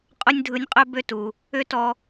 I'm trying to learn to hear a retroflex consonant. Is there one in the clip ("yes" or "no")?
no